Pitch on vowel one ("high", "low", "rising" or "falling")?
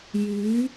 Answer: rising